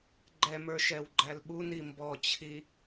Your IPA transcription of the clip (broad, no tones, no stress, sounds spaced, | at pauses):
ɡ͡ǃ ɛ m ə˞ ʃ ɛ w ɡ͡ǃ æ l ɓ u n i m b ɔ t͡ɕʰ i